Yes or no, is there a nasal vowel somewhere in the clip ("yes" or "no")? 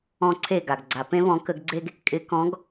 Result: yes